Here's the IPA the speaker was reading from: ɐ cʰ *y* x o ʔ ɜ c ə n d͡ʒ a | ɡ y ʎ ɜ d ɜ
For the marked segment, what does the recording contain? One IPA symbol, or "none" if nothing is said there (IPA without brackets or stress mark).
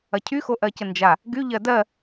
y